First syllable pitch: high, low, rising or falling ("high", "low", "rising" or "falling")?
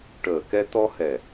low